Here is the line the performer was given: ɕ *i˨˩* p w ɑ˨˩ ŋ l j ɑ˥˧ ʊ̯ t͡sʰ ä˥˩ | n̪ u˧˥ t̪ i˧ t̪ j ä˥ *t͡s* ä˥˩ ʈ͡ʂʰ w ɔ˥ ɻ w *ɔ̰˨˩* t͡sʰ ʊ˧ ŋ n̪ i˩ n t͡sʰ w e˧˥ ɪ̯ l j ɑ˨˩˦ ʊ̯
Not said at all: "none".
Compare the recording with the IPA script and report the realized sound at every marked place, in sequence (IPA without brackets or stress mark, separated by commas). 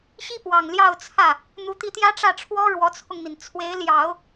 i˥, ʈ͡ʂ, ɔ˧˥